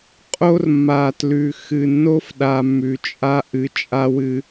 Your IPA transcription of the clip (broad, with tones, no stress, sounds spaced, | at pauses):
qʼ o˦ r mː a˨ t l ʉ˨ x ɨ˨ nː o˦ f ɗ a˧ mː ʉ˨ t͡ʃʼ a˦ ʔ ɨ˧ t͡ʃʼ a˦ w ɨ˦